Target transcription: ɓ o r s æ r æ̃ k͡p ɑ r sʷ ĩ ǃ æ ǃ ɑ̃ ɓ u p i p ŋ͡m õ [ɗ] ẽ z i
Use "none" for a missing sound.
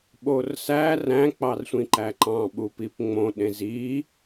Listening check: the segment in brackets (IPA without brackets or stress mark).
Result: ɗ